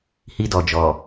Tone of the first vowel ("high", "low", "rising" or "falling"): high